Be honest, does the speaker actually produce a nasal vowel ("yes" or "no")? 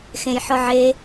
yes